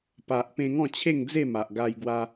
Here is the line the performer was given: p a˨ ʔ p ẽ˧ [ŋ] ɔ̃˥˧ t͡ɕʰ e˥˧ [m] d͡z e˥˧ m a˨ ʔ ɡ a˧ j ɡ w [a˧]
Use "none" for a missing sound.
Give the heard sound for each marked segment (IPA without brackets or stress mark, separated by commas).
ŋ, ŋ, a˧